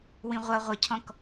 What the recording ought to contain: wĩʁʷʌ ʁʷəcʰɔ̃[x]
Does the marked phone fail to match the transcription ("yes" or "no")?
yes